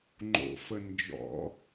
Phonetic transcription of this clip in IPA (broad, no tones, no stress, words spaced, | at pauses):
ŋ͡ǃo̰fə nd͡ʒɔ̰